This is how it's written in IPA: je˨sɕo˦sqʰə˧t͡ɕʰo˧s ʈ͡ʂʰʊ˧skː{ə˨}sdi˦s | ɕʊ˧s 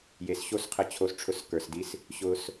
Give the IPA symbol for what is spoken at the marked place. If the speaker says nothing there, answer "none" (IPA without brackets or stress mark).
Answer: ə˞˨